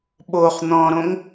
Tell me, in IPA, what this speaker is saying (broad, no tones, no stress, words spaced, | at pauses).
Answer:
ɓoχ n̪ɔ̃ɾõŋ